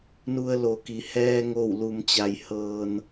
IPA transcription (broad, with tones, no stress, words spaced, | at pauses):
nu˧ə̯lo˩ki˩ hɛː˧ŋo˧˩w lu˩mt͡ɕa˩j hɤː˩n